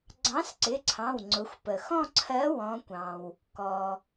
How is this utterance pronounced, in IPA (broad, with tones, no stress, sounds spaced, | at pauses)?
ɡ͡ǀ ɑ̃˨˥ s ǀ ɪ˩˧˩ ǀʰ ɑ̃˩˧˩ w ŋ͡ǀ ʊ˩˧ xʷ p ə˩ x ɔ̃˦˨ ǀʰ ɜ˨˥ w ɔ̃˩˧ kʷ ɑ̃˩ w | k ɔ˩